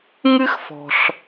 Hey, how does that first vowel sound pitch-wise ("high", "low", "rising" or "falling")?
high